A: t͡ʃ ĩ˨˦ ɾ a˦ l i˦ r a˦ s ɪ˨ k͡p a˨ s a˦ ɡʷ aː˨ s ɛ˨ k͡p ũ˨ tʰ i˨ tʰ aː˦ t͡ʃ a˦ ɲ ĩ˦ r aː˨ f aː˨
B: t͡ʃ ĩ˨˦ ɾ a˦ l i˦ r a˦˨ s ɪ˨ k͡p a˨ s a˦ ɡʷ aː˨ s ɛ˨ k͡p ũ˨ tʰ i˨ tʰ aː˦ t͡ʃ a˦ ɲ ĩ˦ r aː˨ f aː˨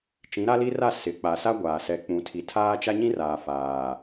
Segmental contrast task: B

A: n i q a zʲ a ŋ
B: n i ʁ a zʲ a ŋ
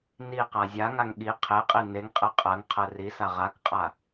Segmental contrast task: A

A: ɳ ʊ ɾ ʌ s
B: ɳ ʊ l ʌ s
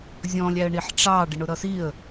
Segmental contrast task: A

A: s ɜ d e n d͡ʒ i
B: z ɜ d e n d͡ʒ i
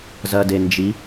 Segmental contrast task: B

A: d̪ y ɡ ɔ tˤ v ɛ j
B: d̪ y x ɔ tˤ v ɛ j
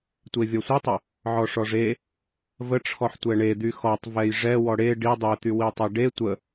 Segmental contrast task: B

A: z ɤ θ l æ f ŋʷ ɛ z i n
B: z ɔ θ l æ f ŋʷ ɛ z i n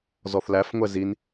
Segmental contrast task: B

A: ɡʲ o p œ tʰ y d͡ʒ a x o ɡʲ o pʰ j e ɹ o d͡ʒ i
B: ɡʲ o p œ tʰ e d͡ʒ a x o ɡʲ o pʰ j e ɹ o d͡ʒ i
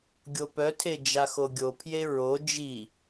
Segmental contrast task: B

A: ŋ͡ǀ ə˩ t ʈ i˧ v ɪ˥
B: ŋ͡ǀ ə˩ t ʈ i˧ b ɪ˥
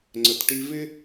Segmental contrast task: A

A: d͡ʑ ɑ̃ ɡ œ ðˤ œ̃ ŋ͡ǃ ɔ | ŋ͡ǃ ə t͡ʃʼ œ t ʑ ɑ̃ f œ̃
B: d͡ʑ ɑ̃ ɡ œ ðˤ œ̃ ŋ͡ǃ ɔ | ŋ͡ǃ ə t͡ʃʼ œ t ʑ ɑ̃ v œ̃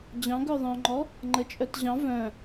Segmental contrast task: B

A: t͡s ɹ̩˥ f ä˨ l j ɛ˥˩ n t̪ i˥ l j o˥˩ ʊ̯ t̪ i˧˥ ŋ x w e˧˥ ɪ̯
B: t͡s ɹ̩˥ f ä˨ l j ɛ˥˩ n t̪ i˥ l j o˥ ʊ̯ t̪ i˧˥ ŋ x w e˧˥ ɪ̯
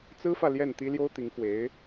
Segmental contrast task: B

